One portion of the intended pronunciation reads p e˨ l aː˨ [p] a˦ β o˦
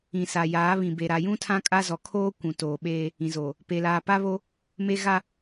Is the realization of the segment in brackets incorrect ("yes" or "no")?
no